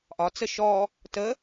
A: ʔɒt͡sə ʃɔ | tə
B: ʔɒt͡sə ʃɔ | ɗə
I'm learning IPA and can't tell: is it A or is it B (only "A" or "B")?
A